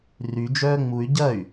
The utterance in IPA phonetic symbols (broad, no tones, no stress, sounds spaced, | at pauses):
r y d͡ʒ œː ŋ͡m u y̯ ɟ ɐ y̯